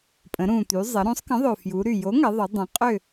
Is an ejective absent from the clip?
no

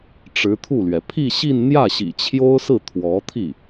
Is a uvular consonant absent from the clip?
yes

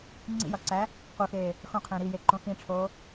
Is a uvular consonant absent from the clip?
no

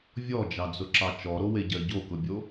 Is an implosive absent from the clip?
yes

